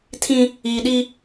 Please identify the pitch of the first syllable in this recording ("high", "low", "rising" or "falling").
high